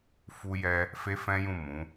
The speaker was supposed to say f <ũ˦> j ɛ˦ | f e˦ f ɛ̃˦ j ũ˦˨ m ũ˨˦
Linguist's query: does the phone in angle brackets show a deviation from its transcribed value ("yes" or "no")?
yes